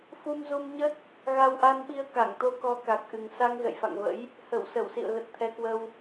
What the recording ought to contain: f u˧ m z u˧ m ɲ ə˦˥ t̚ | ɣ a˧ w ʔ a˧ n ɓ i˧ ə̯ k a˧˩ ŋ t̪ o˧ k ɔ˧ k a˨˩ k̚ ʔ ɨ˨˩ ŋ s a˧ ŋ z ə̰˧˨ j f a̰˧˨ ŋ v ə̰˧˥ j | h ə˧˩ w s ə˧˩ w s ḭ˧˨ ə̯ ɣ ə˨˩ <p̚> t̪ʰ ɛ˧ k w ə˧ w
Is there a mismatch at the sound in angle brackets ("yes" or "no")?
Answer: yes